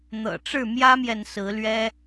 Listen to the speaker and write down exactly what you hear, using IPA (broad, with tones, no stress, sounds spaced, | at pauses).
n̪ ɤ̰˨˩ ʈ͡ʂ ɻ̩˥˨ m j ä˦ m j ɛ˨ n s ɹ̩˨˦ l ɥ ɛ˦